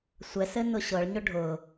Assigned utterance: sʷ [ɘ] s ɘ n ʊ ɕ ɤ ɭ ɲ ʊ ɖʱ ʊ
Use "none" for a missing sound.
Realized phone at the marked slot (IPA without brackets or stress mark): ɛ